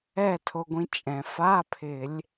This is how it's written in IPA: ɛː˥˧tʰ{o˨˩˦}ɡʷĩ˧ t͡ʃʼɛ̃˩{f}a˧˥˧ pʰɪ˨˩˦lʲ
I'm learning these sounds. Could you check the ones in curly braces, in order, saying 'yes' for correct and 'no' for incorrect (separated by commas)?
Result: no, yes